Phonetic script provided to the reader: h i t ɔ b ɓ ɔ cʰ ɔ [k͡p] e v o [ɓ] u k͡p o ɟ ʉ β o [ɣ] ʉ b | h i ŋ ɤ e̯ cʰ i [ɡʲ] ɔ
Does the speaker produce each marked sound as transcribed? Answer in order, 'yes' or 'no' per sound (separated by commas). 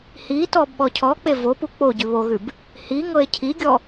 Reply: yes, no, yes, yes